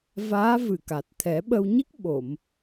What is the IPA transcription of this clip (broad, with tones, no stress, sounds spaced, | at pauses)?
v aː˧˥ v ɨ˨˩ k a˨˩ t̚ t̪ʰ ɛ˨˩˦ ɓ ə˧ w ɲ i˦˥ k̚ ɓ o˨˩˨ m